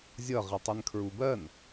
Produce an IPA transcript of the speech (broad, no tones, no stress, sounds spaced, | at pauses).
zʲ ʌ ʁ i tˤ i n kʰ ɹ u b ɜ n